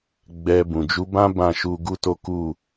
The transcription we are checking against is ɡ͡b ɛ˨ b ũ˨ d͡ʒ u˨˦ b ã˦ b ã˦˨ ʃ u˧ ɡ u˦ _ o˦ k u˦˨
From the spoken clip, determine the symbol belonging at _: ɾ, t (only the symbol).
t